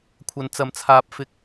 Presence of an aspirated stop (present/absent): present